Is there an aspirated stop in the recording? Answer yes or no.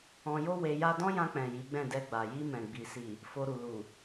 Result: no